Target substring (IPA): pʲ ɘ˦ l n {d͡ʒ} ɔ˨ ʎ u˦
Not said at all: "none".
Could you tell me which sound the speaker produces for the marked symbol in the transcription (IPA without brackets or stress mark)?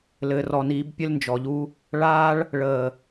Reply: d͡ʒ